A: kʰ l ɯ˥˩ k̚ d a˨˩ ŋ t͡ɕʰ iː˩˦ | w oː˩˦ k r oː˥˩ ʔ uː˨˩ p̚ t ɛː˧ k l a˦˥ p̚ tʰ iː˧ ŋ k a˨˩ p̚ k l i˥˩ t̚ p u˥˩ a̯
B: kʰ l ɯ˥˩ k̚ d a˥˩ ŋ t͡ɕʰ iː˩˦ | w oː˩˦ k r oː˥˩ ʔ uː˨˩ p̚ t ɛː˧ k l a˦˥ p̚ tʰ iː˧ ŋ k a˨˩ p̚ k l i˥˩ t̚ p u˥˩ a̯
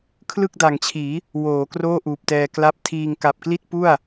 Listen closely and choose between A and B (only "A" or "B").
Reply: A